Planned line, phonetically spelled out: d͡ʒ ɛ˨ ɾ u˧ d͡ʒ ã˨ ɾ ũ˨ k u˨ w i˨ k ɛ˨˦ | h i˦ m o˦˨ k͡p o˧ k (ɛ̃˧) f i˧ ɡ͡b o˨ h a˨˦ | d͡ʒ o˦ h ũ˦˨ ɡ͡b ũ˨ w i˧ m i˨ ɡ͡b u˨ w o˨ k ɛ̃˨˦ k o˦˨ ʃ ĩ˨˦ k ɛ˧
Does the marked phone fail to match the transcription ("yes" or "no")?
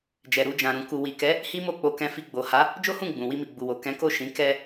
no